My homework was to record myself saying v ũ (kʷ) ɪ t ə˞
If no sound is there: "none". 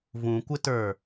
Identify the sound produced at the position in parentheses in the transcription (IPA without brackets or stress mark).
kʷ